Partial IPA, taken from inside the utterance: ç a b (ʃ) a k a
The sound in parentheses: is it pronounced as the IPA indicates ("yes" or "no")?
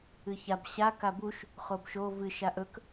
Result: no